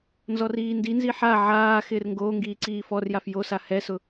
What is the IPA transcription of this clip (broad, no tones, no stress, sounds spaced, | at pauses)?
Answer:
n z ɔ r iː n d i n z i ħ a ʕ aː x ɪː r ŋ ɡ oː ŋ ɡ iː ǀ iː f ɔ r j a f j o s a h ɛ s ʊ